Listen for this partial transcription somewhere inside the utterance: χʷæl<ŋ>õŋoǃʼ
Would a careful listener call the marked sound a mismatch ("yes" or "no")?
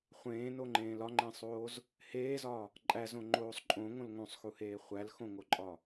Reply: yes